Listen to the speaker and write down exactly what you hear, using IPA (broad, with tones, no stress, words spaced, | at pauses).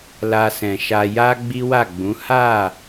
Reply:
la˧sɛ̃˨ʃa˧ ja˦ ɡ͡bi˦wa˦˨ɡ͡bũ˨˦ ha˦˨